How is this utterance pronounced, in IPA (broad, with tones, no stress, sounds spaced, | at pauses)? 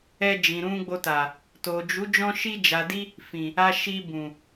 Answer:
ɛ˧ d͡ʒ ĩ˨ ɾ ũ˧ ɡ͡b o˧ t a˨ | t o˨ d͡ʒ u˨˦ d͡ʒ ɔ̃˧ ʃ i˧ d͡ʒ a˨ d i˧ | f ĩ˨ | a˧ ʃ i˧ b ũ˨